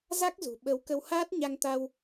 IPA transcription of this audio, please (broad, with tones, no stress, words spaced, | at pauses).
za˦˥k̚zṳ˨˩ɓə˨˦w kə˧whaː˦˥t̚ ɲa˧ŋt̪a˧w